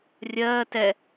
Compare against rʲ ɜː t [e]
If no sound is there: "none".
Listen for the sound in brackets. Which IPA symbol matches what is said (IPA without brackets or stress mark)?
ɛ